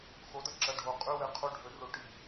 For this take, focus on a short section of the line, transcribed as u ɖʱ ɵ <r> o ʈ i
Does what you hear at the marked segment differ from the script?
no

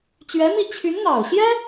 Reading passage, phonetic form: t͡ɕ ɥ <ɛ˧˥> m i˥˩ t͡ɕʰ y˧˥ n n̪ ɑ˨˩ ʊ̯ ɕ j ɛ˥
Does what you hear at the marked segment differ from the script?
no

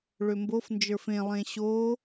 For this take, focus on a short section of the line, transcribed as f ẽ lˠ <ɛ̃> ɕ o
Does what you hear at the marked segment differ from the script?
yes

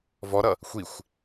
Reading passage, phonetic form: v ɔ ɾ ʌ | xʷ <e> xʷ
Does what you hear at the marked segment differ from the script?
yes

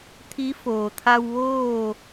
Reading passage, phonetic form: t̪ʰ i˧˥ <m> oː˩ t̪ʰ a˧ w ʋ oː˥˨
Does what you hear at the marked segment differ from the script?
yes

